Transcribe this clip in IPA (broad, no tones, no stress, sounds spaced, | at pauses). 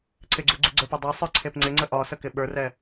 ǀʰ ɪ ɡ͡ǀ u ɡ͡ǀ u ɡ͡ǀ ə˞ p ɛ dˤ ɛ sˤ ə˞ ǀʰ e p ŋ͡ǀ ɪ ŋ͡ǀ ə ʔ ɒ s ə k ɪ ɓ ə˞ r ɛ